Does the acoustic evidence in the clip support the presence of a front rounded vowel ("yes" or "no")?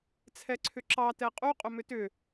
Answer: yes